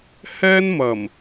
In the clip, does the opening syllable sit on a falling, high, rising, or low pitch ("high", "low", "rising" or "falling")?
high